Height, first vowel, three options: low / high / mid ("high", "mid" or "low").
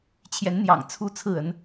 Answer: mid